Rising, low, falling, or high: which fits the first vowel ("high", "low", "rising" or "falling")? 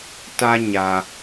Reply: high